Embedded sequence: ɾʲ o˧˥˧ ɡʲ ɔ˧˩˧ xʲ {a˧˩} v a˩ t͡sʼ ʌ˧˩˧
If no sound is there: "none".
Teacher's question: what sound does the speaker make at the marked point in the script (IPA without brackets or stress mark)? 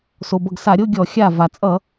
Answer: a˧˩